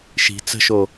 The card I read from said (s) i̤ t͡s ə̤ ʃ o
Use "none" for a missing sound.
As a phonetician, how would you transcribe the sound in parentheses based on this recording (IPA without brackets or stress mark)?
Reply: ʃ